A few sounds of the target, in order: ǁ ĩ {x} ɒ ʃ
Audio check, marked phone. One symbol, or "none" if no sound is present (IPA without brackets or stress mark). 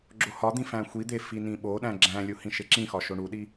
x